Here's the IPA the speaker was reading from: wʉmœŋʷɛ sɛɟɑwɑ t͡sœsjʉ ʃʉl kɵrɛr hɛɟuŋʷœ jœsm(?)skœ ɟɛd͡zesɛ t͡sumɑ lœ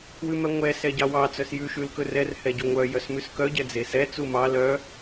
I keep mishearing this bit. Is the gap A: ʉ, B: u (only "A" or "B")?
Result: A